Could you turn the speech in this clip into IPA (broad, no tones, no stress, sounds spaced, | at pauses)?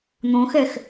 n̪ õ x ɛ x